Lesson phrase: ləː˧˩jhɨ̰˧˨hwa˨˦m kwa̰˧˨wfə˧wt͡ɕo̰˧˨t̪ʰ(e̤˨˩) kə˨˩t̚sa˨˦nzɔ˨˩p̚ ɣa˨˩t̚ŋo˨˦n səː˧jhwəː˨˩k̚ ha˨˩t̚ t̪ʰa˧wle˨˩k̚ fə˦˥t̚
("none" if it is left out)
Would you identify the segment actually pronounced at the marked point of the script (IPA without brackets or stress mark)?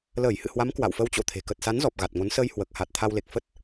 e̤˨˩